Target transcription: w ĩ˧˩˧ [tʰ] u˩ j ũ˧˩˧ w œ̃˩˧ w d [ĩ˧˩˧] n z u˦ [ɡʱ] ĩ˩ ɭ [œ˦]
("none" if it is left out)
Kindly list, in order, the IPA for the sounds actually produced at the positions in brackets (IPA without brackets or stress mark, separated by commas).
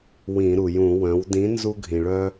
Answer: ɾ, ĩ˨˥, ɡʱ, œ˦